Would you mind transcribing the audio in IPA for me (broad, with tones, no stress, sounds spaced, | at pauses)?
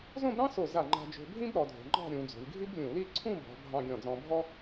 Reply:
z õ˥˧ b ɾ ɑ̃˥ s o˧˩ z a˧˩ ŋ͡ǃ a̤˧ d͡ʒ o̤˧ bʱ ĩ˥ b ɾ ɔ˩˧ dʱ o̤˩˧ ŋ͡ǃ ɑ̤˥˧ ɾʲ ũ˩˧ d͡z o̤˩˧ lʲ ɡʱ i˥ b lʲ ũ˧˩ l i˥˧ ǀʰ ũ˥˧ b ɔ̤˩˧ bʱ ɑ̃˧ ɡʲ ɔ̃˧˩ d͡z ɔ̃˧ bʱ ɔ˥